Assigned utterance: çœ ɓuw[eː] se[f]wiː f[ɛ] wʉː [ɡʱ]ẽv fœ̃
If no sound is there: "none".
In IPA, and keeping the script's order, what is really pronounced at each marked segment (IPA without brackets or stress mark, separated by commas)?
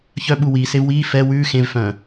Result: iː, v, ɛ, x